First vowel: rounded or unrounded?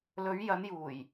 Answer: rounded